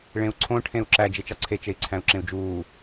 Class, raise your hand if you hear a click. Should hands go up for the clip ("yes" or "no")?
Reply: yes